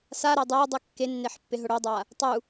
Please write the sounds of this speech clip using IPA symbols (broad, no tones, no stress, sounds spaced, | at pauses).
s a ɾ ɛ dˤ ɛ dˤ u kː e nː e ħ pː ɪ ɦ ʊ ɽ o dˤ a | tˤ u